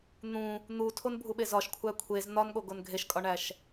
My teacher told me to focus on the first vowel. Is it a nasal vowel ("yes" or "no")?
yes